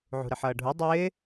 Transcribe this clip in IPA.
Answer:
ʕṳɾɪħʌːɖʱu dˤɪː

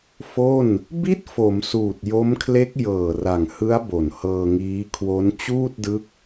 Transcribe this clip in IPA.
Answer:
fo˥˩n | bi˥˩t̚fo˩˦m suː˨˩t̚jo˦˥mkʰle˦˥k̚ jɤː˨˩ra˨˩ŋhɯ˦˥a̯ bo˨˩nhɤː˧ŋiː˦˥ kʰwo˦˥n t͡ɕuː˥˩t̚dɯ˦˥k̚

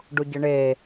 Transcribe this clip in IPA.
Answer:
ɖuɟəɳe

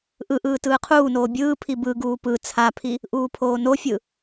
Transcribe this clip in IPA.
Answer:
ʔɯʔɯː tɯːqʰuːnoː bʲɯːpʰi bɯɡuː pɯ t͡sʰapʰi | ʔuːpʰoːnofʲɯ

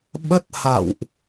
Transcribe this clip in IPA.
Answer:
ɓə˦˥t̚ha̰˧˨wʔ

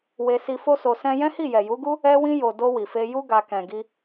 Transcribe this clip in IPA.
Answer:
we˧si˧ fo˦so˧sɛ̃˦ jɛ̃˦hi˦˨ jɛ˨ju˨˦ɡu˦ | ɛ˧wĩ˧ jo˨do˧ wi˨fe˧ju˦ ɡa˧ kɛ̃˨ɡi˧

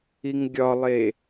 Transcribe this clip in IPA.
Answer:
iŋɡʲɒlˠe

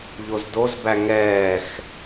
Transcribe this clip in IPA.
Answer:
ʎozdozbæ ŋɛːx

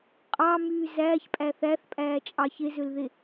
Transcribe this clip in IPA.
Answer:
qʼɑmyː zæːçpʼæ θæθpʼæːt͡ʃʼɑ çezølðe

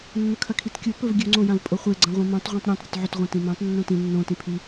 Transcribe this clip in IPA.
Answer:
nːɵkʰɐkʰitkʲo pɵvɡʲɵ ŋ͡ǀõjãvpʼoχʷe ɡ͡ǀɐ̃ʁʷĩmõtˤ ʁʷĩtˤɾʲãtˤ ɾʲɵtʕɵt ʁʷɐ̃tĩmãtˤ nːõtĩ nːõ tĩpʰi

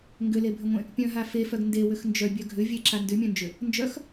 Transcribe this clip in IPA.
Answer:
ŋɡʏlebʱʏŋʷẽ | pʲœ̃ɦa fefœɡ ndewʏx nd͡ʒœbʲœ ɡʱʏ vʲeǁa ndʏmʲœ̃nd͡ʒʏ | nd͡ʒœx

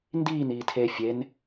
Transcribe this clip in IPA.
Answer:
ndiːn iːtʰe fʲen

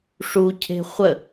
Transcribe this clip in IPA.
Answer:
ʂucʰe̤ χʷə

